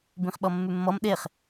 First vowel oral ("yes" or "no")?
no